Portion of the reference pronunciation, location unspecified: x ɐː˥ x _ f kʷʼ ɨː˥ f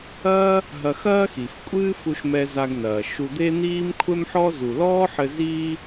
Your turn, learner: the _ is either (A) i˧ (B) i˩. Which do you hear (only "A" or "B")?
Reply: B